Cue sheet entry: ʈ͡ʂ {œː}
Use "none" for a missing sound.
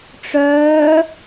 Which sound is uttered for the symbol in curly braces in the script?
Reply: œː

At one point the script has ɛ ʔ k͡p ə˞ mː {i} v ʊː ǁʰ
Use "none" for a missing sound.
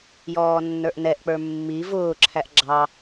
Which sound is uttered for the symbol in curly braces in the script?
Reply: i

